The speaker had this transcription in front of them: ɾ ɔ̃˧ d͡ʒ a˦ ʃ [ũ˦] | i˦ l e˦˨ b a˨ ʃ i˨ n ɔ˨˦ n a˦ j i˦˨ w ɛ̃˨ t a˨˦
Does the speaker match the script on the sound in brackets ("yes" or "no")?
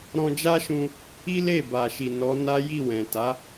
no